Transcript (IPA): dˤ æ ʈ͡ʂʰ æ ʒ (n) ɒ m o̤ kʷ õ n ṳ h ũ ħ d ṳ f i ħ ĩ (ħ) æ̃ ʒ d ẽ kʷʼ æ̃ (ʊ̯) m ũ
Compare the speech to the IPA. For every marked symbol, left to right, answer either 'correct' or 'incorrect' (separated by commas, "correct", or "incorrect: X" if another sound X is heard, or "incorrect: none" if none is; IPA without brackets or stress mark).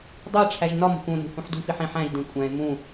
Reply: correct, correct, incorrect: ɪ̯